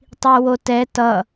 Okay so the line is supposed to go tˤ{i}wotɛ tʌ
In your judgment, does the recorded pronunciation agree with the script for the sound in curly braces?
yes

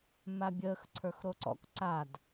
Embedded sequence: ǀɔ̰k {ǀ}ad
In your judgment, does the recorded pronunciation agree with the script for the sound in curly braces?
yes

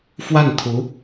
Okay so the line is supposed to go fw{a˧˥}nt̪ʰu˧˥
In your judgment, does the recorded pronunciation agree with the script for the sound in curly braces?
no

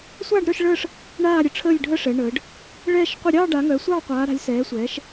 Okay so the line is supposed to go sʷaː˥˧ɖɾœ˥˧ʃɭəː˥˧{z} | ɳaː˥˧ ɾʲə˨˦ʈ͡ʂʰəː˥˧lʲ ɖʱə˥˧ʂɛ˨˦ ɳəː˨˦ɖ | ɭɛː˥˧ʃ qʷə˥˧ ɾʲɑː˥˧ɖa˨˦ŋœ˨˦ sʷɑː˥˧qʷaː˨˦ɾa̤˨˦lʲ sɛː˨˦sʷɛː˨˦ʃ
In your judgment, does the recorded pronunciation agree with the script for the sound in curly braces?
no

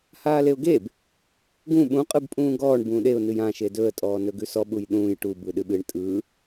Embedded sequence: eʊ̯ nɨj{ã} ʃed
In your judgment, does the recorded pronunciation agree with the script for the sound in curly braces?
yes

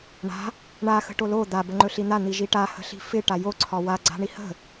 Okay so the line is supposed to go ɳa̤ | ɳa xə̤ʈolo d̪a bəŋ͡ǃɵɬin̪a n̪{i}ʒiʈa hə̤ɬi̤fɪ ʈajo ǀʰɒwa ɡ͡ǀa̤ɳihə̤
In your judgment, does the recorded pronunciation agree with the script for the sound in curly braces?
yes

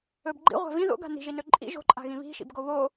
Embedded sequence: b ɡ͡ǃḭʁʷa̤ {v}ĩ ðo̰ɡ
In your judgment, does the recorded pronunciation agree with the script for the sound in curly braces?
yes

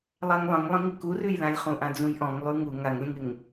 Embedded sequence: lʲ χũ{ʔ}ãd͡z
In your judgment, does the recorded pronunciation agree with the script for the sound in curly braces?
yes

